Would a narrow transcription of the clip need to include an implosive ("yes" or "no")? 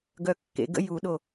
yes